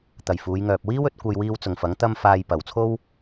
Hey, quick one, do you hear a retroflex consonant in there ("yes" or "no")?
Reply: no